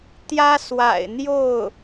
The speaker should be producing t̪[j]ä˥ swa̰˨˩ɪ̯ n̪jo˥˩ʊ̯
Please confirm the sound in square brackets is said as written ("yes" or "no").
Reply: yes